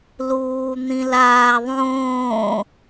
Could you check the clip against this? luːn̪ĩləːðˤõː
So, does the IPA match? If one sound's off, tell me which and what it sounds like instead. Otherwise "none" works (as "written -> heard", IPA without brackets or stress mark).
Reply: əː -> aː